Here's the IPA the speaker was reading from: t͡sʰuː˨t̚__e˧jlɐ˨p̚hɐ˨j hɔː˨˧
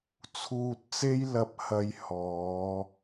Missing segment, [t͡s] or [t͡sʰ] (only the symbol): t͡s